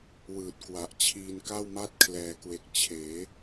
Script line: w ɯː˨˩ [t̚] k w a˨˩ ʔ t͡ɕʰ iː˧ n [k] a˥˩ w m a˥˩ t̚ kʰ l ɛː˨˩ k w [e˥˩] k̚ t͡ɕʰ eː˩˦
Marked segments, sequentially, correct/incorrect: correct, correct, incorrect

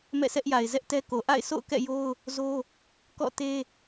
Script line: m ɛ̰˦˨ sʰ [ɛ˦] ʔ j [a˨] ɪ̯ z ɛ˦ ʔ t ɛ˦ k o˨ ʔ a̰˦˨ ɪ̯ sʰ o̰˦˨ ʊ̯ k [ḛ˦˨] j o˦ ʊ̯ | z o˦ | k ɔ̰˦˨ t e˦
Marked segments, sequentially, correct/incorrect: correct, correct, incorrect

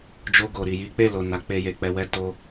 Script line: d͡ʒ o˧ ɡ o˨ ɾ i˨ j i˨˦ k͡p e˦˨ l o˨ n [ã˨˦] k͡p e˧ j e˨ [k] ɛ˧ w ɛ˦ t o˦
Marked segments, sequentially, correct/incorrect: incorrect, incorrect

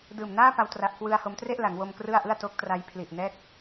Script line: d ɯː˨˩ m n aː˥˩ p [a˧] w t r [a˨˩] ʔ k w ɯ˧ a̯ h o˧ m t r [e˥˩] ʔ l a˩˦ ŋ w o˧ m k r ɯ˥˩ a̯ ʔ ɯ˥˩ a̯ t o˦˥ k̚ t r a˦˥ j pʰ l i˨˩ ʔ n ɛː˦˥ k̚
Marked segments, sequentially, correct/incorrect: correct, correct, correct

